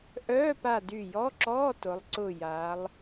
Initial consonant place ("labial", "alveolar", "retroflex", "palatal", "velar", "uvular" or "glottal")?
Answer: glottal